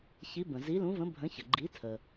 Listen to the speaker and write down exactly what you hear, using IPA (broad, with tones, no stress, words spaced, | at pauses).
çi˨˥bə̃˩ zi˨˥lũ˨˥və̃˨˥ bʱə̃˨˥çə˩ ɡ͡ǃi˨˥tʰə˩